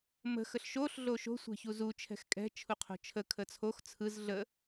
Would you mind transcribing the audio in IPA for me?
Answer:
m ə̤ x ə ɬ ʃ o ɬ ɮ o ʃ o̤ sʷ ɛ̤ ç u z u t͡ʃʰ ɛ̤ x kʼ ɛ̤ t͡ʃʰ u qʰ o̤ t͡ʃʰ ə kʰ ə t͡sʰ o x t͡sʰ ɯ z ɮ ə

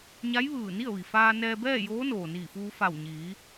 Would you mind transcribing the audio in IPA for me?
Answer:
ɲ a˧˥ j ʋ ɯː˧˩ n i˥˨ ə̯ ʋ i˩ f aː˧ n ɛː˧ b ɛː˥˨ j oː˧˥ n oː˩ n iː˧˩ f uː˧ f a˧˩ w ɲ iː˩˧

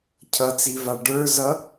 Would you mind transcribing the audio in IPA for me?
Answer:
cʰ ʌ t͡s i v a ɖ ə˞ z ʌ

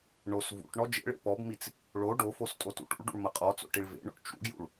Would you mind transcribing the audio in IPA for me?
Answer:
ɳ o s v ṵ ʈ ɳ ɔ d͡ʒ ḛ ɭ ḛ p ɔ b m i t͡s | ɭ o ɖ o f o s tʼ o t ṵ ʈ ṵ ɭ ɖ ṵ ɭ m ɐ qʼ ɔ t͡s o̰ ʈ i ɭ v ḛ ɳ o̰ ʈ t͡ʃ ṵ ɡ j ṵ ɭ

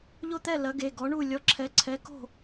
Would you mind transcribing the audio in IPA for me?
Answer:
ʎ o˥˨ t̪ ɛ˥˨ l ɐ˨˥ ɡ e˩˧˩ ɡ ɔ˨˥ ɳ u˥˨ lʲ ɔ˨˥ ǁʰ ɛ˨˥ ǀʰ ɛ˨˥ k o̤˥˨

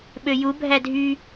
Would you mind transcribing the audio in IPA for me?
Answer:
ɓ ø j u bʱ æ dʱ y

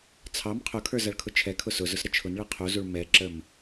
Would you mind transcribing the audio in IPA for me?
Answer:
t͡sʰ ɑ m qʰ ʊ kʰ ə˞ z ɐ ɭ kʰ ʊ t͡ʃʰ ɛ kʰ ʊ s ʊ z ʊ s ɾ ə t͡ʃʰ ʊ n ɭ e qʰ u z u ɭ m ɛ ǁ ə m

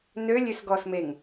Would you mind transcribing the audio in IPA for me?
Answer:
n ø lʲ ø s ɡ ɔ s m e ŋ

